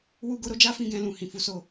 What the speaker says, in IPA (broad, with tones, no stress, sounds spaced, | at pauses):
w u˦ ɡ o˦ ɾ o˦ d͡ʒ a˦ f ĩ˦˨ ɡ ɛ̃˧ l ũ˨ h ĩ˨ f u˧ s o˧